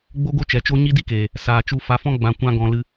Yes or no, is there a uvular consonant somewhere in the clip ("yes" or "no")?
no